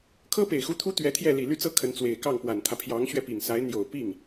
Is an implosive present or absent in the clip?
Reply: absent